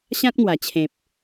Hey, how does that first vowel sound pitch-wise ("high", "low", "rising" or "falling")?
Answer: high